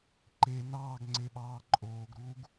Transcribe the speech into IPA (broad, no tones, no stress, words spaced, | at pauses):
ǃe nɑːɡŋ͡ǀeɓɑː ǃʼoːɡɾuːɡ